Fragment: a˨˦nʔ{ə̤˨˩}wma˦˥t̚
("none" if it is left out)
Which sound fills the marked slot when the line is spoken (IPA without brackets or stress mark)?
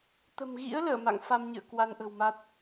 ə̤˨˩